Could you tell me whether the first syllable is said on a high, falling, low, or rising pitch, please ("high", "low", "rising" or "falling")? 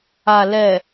low